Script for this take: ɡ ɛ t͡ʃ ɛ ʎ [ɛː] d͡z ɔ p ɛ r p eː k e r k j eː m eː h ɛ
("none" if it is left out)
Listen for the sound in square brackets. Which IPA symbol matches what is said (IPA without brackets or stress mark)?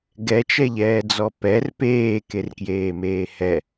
ɛː